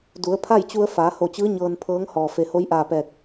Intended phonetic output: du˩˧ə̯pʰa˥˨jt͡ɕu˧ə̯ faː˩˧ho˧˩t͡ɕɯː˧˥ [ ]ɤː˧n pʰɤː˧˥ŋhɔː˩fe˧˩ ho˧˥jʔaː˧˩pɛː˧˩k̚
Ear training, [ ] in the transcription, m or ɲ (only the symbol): ɲ